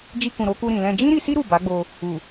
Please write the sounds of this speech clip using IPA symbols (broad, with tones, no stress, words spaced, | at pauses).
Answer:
d͡ʒi˧kũ˨ ɾo˧ku˧ ɾĩ˨lɛ̃˧ d͡ʒĩ˦ɾi˧si˦ ɾu˦˨ba˨˦ɡ͡bo˧ | u˨